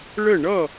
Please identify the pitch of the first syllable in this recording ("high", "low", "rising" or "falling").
falling